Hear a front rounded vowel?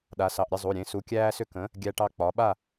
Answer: yes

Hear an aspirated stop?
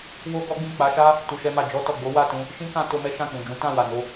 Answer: no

